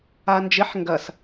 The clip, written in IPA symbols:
and͡ʒɪħ ŋɡɐs

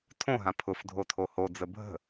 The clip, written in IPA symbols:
tʰõɦã pʰʊf dʱotʰohod͡zə bʱə̤

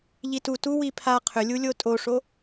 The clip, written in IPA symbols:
ʎitu tu wipʰa qʰʏlʲulʲo tʼoʂo

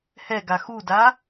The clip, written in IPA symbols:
hɛɡa xuda

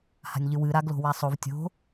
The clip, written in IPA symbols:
ha̤nʲʎɨwɨ ɾaɡlo̤wasˤov tʲo̤

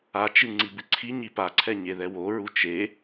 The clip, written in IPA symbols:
at͡ʃɨ ŋ͡ǀibɨǀʰiɲi paǀʰɛ ɲeðɛwoɹu t͡ʃe

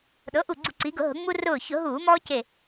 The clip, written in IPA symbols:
ɗɤ˩˥ʔu˧˩ɡ͡ǀu˧˩˧ ǀi˩˧ɡʊ˧˩˧ɦʊ˩˧ ŋ͡mu˦ rʊː˧˩çʊ˧˩˧ɦuː˧˩˧ mɔː˦ce˧˩

